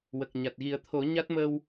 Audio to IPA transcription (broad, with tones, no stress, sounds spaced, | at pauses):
w ə˨˩ k̚ ɲ a˨˩ t̚ ɣ i˨˩˦ ə̯ t̪ʰ o˨˩˦ ɲ a˦˥ t̚ m ə˧ w